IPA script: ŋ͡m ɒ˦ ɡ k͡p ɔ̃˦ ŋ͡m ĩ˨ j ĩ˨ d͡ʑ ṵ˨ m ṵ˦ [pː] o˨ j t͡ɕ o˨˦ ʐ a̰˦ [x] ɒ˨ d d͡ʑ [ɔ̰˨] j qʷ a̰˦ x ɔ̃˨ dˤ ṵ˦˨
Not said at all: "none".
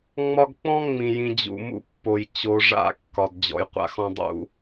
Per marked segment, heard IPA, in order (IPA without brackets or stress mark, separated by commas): pː, kː, ɔ̰˨